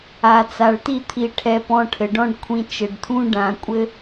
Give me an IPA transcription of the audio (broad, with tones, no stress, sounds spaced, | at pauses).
a˨ t͡s a˨ ɭ t i˦˨ t̪ʰ i˧ ʈʰ ɛ˧ p ɔ̃˧ ʈʰ ɘ˨ ɖ ɔ̃˦ ɖ kʷʰ ĩ˧ t͡ʃ ɘ˨ ɖ t̪ʰ ũ˦ ɖ ã˨ kʷʼ ɘ˧